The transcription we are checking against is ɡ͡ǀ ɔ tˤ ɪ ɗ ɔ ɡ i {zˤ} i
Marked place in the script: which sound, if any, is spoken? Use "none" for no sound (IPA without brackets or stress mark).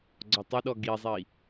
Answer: zˤ